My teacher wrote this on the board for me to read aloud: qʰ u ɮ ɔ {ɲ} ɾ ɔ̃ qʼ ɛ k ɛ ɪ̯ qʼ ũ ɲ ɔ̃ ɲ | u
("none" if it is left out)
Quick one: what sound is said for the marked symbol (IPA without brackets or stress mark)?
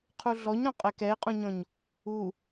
ɲ